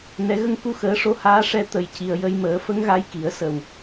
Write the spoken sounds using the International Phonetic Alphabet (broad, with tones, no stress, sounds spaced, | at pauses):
n ɛ˨˩˦ ɣ ə˧ ŋ k u˧ x əː˨˩˦ ʂ o˧˥ h aː˧˥ ʂ ɛ˧ t̪ ə˨˩ j c i˨˩ ə̯ j ə˧ j m əː˨˩˦ f ə˧˥ ŋ ɣ a˧˥ j k i˨˩˦ ə̯ s ə˨˩ w